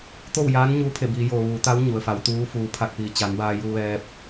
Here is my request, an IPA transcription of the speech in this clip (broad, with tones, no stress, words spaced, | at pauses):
t̪o˥˨wjaː˧˥n ɲuː˧˥pʰe˧˩biː˩˧joː˩ ʋuː˩˧t̪a˧˥w ɲu˩ə̯fa˩˧wt̪uː˧˥ fuː˩pʰa˧˩k̚piː˩ t͡ɕa˩˧nbaː˧ ju˧ʋɛː˧p̚